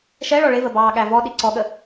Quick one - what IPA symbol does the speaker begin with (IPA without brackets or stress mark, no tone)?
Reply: ʃ